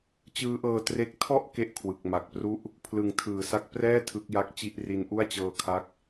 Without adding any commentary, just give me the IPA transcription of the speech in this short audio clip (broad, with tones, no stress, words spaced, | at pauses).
t͡ɕɯː˦˥ʔɤː˧tre˦˥k̚ tʰɔ˥˩ʔ ke˥˩ʔkʰwɯ˨˩k̚ ma˨˩k̚ pru˦˥ʔ | pʰlɯ˨˩ŋtʰɯː˩˦sa˦˥k̚ prɛː˥˩ tʰɯ˦˥k̚ja˦˥k̚t͡ɕi˥˩ʔri˦˥n ʔu˥˩a̯t͡ɕɤː˧kʰa˦˥k̚